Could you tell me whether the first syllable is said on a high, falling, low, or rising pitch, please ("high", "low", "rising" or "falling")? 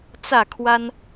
falling